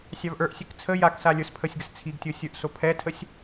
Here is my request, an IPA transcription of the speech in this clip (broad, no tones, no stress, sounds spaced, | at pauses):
sʲ ɑ v ʔ ə˞ ʔ sʲ ɛ k t͡sʰ ə j a k s a lʲ ə˞ s pʰ ə sʲ ɡ ə s t͡sʰ i ɡ tʲ o sʲ ə˞ ʔ s o pʰ ɛ tʰ ə sʲ